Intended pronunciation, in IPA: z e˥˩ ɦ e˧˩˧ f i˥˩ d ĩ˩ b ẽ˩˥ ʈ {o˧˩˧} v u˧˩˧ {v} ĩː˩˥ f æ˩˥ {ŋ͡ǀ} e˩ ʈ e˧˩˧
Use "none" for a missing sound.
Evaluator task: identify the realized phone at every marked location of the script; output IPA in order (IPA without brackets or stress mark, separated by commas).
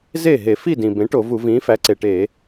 o˧˩˧, v, ǀ